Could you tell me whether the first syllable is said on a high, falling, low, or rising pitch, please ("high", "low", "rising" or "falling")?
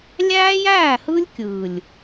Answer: high